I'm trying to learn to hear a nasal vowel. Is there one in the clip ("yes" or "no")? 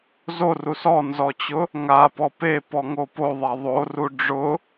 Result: no